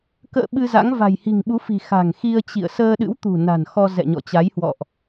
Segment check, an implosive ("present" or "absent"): present